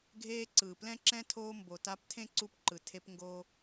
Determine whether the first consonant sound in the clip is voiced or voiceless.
voiced